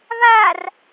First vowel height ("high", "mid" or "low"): low